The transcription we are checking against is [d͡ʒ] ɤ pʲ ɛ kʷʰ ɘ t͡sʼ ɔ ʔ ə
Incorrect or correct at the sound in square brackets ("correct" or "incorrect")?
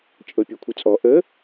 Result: incorrect